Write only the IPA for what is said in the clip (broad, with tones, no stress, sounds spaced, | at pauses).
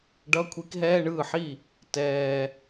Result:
ɖ ʌ˧˥˧ kʷʰ i˧˥ k ɦ ɛː˧˥˧ ɳ ɯː˥˩ ħ i˥˩ | t ɛː˨˩